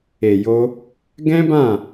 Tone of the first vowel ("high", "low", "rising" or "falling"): low